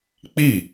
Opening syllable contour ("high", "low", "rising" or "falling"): falling